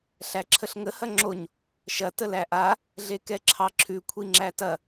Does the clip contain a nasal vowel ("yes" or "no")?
no